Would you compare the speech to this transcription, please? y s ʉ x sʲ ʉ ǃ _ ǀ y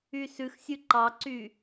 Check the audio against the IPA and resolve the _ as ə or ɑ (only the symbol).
ɑ